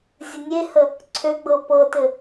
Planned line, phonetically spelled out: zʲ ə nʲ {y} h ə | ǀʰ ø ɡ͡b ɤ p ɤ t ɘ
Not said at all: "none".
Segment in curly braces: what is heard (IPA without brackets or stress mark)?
e